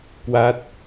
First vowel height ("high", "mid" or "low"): low